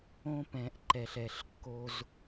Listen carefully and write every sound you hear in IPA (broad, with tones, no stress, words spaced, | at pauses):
õ˦pɛ̃˨ʔǃɛ˨ɬɛ˨ɬ kːo˦z